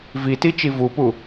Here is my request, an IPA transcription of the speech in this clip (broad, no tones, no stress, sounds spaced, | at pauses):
v i t i t͡ʃ i v u p u